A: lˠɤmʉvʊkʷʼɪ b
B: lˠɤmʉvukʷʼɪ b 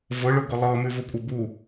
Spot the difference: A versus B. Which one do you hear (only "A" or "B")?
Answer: A